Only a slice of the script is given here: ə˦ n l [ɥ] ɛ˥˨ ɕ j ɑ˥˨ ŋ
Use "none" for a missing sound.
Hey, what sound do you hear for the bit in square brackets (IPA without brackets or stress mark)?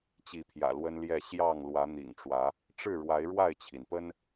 j